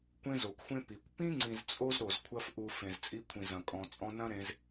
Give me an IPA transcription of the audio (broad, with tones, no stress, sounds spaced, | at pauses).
kʷ ẽ˦ z o˨ kʷ xʷ ẽ˦ p i˨ kʷ p ĩ˦ ŋ͡ǀ ĩ˨ z t͡sʼ o˧ z ɾ o˨ z kʷʰ ɐ˧ f ʔ u˨ f ẽ˨ z t͡sʼ i˧ kʷʰ ĩ˨ z ɐ̃˨ kʼ ɔ̃˨ t͡sʼ ɔ̃˧ n ɐ̃˦ ɾ ẽ˧ z